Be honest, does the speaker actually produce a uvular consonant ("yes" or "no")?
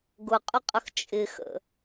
yes